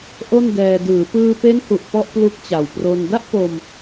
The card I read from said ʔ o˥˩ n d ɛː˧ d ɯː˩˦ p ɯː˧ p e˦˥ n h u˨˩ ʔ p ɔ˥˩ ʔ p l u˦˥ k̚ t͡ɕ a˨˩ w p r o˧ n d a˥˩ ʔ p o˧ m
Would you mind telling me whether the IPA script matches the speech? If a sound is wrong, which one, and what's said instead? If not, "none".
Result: none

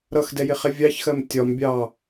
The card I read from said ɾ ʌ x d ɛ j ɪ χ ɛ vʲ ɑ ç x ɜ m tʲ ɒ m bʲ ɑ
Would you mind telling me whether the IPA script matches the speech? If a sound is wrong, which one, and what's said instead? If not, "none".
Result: none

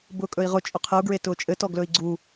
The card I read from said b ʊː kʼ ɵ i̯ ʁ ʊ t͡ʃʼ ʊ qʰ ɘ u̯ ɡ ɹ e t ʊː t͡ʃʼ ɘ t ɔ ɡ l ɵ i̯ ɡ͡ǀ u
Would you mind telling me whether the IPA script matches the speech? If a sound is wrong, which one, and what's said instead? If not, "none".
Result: none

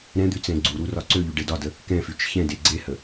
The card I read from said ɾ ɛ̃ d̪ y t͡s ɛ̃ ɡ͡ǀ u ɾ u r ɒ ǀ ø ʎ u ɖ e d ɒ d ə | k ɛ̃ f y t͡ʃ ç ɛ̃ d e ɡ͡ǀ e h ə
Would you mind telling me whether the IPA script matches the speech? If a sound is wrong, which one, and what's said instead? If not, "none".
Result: none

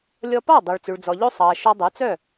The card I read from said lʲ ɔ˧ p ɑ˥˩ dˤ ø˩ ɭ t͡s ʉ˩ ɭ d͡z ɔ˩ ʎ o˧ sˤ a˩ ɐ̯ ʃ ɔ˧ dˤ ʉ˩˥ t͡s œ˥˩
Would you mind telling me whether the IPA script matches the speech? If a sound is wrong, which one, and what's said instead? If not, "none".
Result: a˩ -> ɑ˩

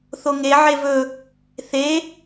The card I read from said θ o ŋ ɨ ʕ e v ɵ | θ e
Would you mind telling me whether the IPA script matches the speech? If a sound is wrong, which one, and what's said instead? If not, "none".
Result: ɨ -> e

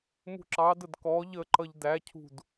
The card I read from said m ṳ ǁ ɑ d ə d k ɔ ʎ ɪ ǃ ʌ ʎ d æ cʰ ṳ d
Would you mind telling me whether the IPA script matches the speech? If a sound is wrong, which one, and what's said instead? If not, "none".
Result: ɪ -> ə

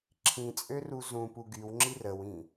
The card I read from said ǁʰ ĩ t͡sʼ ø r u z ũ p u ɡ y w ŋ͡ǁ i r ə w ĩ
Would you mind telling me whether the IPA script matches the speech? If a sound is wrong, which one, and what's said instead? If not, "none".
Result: none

